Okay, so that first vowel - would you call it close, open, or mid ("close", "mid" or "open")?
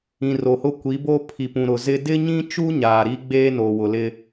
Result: close